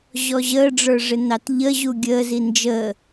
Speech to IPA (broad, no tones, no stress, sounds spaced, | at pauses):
ʑ ɔ ʑ əː ɖ͡ʐ ə˞ ʐ ɪ n ɑ t ʎ ə ʑ u ɡʲ əː z i n d͡ʒ əː